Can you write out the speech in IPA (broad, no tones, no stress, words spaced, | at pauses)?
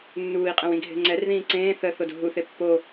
nːuːi̯qʼɛ̃w ĩɡʱe̤ŋ͡ǀɛrðĩː ǀẽː θə θodo̤ɦuθe pːo